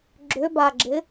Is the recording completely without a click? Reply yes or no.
no